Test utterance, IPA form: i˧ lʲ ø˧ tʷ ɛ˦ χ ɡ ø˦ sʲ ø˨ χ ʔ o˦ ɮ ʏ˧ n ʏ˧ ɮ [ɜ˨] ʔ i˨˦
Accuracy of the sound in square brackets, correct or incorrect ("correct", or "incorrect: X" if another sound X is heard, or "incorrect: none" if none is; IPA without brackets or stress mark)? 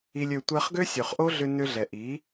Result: incorrect: ɛ˨